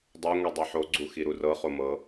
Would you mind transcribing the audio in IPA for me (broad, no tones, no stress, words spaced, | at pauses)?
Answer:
dˤɤ ŋʷidˤɛħo ɡ͡ǀuxiɾurɤ χomɤ